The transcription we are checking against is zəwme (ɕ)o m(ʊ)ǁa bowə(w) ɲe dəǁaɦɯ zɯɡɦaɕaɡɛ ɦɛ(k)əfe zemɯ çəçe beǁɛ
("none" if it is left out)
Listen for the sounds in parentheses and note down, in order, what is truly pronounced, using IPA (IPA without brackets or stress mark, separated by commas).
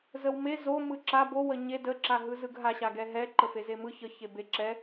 z, ɯ, none, ǃ